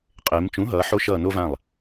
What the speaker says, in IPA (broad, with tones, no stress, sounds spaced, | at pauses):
qʼ e˩˧ m t͡ʃ ũ˩˥ ɦ ʌː˩˧ ħ o˧ ʃ ʌː˧˩ n o˧ v ã˧˩ lˠ